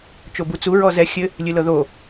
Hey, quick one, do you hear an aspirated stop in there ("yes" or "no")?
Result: no